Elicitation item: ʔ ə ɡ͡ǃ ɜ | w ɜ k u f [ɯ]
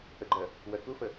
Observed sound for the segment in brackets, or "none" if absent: ə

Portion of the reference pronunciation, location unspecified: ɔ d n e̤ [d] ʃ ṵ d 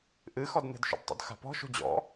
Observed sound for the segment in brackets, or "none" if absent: d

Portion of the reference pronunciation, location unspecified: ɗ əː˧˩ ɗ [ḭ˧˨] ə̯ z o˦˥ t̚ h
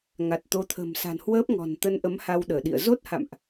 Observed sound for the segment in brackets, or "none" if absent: ḭ˧˨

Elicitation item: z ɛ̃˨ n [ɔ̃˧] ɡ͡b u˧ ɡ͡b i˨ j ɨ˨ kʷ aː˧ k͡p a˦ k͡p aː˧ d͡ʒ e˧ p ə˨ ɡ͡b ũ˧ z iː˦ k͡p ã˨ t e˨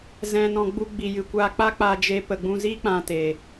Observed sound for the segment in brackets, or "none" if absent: ɔ̃˨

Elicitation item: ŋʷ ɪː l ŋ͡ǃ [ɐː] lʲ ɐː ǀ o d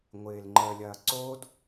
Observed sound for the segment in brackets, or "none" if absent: əː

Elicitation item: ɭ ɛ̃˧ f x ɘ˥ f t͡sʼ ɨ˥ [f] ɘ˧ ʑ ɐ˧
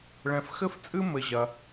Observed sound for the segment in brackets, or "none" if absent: m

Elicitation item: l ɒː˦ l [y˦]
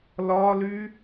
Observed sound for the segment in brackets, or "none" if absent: y˦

